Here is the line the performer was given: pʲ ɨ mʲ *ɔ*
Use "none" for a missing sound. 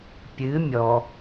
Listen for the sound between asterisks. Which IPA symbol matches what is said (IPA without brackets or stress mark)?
ɔ